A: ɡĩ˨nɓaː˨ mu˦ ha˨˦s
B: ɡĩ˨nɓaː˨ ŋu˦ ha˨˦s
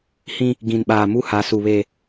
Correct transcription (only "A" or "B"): A